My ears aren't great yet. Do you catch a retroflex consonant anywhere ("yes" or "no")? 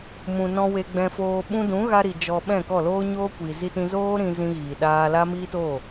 no